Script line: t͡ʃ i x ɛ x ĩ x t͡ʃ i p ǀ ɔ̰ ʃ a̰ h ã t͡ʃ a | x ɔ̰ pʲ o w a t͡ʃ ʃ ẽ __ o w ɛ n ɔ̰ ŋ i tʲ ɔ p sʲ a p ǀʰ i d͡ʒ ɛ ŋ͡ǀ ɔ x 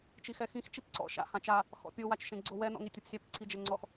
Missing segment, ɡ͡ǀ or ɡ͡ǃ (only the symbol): ɡ͡ǀ